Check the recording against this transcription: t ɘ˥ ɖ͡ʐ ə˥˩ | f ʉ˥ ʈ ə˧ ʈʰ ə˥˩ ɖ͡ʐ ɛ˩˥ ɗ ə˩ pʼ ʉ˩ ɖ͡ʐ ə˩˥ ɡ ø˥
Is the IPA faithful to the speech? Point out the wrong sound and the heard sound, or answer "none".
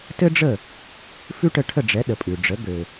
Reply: ø˥ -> ø˩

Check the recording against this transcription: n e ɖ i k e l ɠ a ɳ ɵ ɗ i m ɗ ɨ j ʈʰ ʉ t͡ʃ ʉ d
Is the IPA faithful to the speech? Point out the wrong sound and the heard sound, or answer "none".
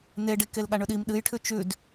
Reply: none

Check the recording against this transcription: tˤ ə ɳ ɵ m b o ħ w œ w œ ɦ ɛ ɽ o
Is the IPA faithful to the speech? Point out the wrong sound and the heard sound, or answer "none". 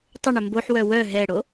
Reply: none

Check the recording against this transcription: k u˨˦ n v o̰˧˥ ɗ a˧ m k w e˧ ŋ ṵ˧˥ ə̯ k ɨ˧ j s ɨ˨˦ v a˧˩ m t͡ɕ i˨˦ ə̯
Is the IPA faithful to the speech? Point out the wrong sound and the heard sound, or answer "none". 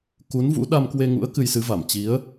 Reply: o̰˧˥ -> ṵ˧˥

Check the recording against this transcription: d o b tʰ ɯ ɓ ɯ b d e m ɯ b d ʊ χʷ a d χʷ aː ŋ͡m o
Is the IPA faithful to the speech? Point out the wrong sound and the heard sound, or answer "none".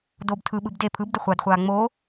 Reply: m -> pʰ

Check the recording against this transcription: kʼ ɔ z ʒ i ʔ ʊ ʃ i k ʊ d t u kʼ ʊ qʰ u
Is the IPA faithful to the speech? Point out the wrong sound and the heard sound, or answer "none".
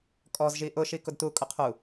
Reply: none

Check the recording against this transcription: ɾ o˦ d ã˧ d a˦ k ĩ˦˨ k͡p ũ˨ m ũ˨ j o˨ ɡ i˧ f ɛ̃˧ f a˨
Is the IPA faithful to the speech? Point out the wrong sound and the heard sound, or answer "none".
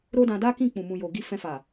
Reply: none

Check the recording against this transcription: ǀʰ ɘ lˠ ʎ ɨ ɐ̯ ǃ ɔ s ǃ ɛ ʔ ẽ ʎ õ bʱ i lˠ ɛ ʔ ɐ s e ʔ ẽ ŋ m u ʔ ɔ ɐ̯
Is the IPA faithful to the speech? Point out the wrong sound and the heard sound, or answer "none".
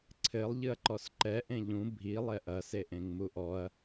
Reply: õ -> ũ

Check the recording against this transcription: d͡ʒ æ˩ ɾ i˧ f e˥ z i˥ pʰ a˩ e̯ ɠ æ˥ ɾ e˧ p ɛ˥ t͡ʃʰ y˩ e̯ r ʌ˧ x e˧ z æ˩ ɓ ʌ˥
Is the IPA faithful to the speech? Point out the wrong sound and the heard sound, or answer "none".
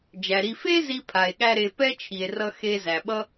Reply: y˩ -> i˩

